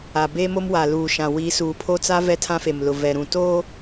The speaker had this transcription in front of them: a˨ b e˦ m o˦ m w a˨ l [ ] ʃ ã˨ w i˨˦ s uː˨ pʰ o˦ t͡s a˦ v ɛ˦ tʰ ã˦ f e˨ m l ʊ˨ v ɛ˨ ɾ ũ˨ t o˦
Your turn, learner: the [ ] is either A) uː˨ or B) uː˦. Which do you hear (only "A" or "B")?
A